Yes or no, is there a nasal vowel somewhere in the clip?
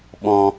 yes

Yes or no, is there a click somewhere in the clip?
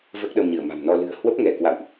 no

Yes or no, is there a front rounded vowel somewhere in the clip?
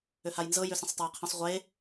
yes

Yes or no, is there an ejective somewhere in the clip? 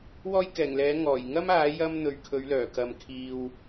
no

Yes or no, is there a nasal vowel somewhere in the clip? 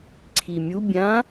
yes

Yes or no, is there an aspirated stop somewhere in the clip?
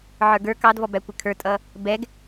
yes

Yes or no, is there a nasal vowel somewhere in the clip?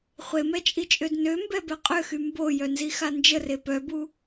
no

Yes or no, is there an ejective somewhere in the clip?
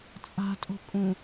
yes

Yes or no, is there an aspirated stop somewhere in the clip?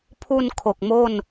yes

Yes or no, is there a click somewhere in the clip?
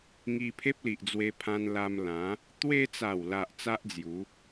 no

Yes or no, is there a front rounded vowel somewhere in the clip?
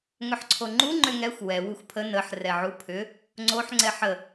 yes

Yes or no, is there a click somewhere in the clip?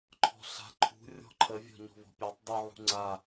yes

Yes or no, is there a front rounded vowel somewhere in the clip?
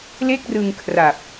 no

